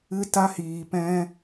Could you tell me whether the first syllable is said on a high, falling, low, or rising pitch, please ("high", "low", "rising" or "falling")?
high